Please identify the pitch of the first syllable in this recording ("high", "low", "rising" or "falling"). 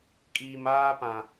low